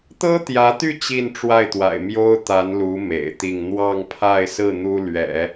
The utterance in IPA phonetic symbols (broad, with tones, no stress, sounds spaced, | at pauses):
t̪ ɤ˥ t̪ j ä˧˥ t̪ y˥˧ t͡ɕ i˥˧ n ʈ͡ʂ w a˥˩ ɪ̯ t̪ w a̰˨˩ ɪ̯ m j o˥ ʊ̯ t̪ a˧˥ n l u˧˥ m ḛ˨˩ ɪ̯ t̪ i˥˧ ŋ n̪ w ɑ˥˧ ŋ pʰ a˥˧ ɪ̯ s ɹ̩˥˩ n̪ u˥ l ɥ ɛ̰˨˩˦